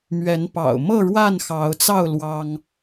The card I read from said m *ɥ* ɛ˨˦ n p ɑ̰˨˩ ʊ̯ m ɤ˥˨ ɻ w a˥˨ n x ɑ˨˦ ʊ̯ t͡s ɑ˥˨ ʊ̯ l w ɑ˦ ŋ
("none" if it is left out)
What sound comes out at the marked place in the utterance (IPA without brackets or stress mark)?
ɥ